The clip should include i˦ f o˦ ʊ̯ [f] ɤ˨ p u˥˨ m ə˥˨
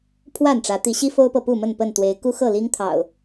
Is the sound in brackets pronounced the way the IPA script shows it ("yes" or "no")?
no